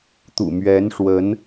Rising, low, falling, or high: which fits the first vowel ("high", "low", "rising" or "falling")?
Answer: low